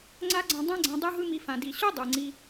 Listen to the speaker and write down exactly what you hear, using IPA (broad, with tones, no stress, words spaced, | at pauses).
ŋ͡ǀa˦ɡ͡ǀã˧ dˤã˧ɡ͡ǀã˨ dˤɯ˦ɦɯ˦mi˧fã˨ di˨ɕu˦ dˤɯ˨ŋ͡ǀi˧